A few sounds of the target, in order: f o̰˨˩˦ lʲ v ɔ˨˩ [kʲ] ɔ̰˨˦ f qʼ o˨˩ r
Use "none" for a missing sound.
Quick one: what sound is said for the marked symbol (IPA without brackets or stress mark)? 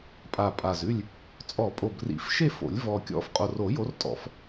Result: kʲ